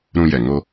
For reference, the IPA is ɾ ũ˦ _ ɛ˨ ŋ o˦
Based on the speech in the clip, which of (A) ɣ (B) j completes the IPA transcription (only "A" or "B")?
B